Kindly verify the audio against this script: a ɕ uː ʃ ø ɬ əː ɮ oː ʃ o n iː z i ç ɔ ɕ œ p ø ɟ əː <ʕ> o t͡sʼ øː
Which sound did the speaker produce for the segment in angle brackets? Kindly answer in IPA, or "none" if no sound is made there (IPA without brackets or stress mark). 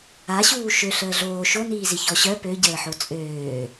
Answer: ħ